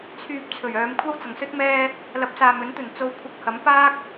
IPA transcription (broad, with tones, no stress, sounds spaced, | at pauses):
t͡sʰ yː˧ p̚ t͡sʰ ɵ˨˩ ɥ œː˨˧ m kʷʰ ɐ˥ w t͡s ɐ˨˩ ŋ s ɵ˥ t̚ m ɛː˧ | l ɐ˨˥ p̚ s aː˨ m ɵ˨˥ n t̪ ɵ˨˩ n t͡s o˧ w kʷʰ ɐ˧ k̚ h ɐ˨˥ m p aː˥ k̚